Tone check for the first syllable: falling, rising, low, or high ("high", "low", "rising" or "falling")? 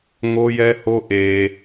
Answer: high